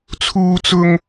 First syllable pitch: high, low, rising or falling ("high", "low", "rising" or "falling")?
high